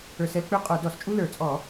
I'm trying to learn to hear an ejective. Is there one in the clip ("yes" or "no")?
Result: yes